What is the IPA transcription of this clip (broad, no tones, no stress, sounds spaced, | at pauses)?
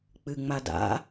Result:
k͡p ɨ ŋ͡m a d a̰